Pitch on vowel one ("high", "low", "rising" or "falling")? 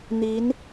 rising